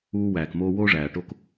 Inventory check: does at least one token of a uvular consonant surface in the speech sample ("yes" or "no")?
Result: no